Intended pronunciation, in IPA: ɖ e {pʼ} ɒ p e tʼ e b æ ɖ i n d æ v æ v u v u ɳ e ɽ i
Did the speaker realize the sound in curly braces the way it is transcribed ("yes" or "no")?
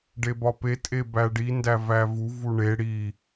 no